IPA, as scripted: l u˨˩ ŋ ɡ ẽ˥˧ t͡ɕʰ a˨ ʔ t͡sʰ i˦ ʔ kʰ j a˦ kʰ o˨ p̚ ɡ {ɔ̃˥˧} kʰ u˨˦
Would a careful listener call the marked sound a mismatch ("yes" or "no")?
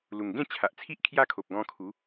yes